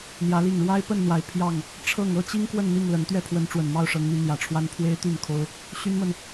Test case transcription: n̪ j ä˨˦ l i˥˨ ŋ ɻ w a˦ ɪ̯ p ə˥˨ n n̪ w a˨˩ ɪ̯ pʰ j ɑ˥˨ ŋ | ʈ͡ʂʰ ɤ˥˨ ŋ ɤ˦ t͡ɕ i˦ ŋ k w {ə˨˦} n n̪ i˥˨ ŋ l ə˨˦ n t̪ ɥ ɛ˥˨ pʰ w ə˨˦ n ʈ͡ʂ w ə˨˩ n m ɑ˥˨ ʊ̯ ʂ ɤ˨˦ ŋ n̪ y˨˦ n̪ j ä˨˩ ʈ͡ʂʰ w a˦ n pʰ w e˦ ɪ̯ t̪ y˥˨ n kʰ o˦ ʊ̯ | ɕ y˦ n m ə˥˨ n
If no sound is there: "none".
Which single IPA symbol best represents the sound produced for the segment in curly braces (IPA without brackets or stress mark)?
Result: ə˥˨